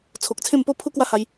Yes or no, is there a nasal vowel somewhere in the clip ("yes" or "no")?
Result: yes